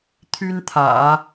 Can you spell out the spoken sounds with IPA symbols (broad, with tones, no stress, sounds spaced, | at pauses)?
t̪ʰ y˥ n t̪ʰ ä̰˨˩˦